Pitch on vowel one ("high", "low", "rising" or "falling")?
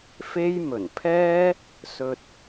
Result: high